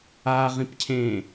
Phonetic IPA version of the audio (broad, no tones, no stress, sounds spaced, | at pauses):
a ʁ ĩ p cʰ ẽ